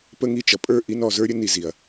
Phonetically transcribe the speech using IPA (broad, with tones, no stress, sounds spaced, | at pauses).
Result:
p ə˧ ŋ i˧ t͡ʃ ʌ˨ pʼ ə˞˦˨ ʔ i˦ n ɔ˨ z ə˞˦ ɾʲ ə˦ n i˧ z i˨ ɐ̯